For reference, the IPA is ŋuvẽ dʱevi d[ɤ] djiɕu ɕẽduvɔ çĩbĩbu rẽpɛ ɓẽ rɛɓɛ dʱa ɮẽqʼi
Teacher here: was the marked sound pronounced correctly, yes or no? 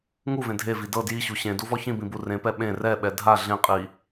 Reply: yes